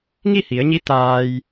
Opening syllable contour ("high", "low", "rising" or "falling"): falling